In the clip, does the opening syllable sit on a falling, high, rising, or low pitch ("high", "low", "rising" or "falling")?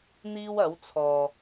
high